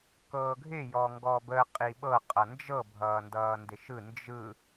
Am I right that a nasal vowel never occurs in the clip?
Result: yes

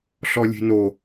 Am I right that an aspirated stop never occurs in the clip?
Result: yes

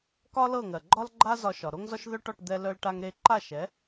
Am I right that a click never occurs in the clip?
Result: no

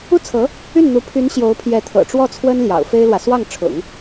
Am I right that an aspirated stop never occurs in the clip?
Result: no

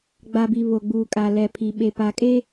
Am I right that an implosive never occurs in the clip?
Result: no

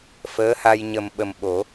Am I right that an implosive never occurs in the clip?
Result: no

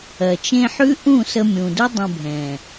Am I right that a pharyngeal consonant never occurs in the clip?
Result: no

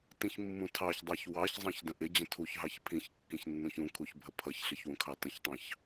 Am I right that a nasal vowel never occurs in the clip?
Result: no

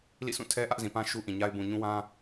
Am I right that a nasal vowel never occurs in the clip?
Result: no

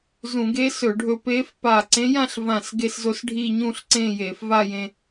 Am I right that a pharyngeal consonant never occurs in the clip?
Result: yes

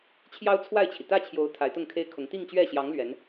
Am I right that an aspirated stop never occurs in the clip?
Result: no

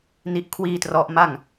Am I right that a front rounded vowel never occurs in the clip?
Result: yes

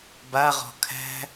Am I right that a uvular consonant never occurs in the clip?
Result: no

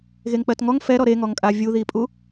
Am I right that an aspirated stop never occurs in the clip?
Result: yes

